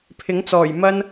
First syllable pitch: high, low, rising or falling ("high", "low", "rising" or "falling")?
rising